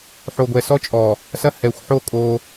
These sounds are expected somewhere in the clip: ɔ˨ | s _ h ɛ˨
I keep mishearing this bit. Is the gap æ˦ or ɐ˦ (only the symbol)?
ɐ˦